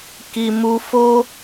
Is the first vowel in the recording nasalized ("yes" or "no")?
no